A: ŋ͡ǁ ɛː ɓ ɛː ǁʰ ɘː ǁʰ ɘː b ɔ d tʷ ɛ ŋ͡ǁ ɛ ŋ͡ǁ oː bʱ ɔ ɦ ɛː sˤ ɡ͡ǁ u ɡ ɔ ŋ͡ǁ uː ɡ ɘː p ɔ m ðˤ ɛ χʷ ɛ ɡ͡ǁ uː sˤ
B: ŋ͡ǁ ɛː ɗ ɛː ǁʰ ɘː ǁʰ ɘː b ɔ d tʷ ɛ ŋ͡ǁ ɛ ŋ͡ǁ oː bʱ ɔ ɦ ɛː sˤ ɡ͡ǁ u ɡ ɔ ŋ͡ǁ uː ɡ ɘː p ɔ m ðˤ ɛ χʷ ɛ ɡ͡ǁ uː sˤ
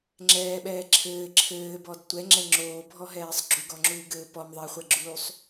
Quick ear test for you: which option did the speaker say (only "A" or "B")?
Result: A